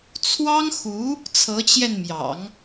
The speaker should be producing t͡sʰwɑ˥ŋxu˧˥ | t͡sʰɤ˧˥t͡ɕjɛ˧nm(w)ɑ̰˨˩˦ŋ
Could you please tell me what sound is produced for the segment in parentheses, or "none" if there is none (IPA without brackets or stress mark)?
j